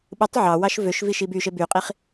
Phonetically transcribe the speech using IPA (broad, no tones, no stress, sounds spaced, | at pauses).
ɓ ɯ tˤ ʕ ɑ w ɑ ʃ v ø ʃ v i ʃ i b y ʃ e b y qʼ i χ